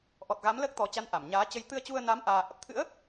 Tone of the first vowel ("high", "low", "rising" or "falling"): low